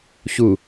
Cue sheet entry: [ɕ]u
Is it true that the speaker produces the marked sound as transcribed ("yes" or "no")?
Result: yes